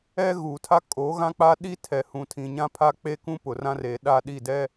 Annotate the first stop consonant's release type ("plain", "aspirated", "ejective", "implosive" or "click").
aspirated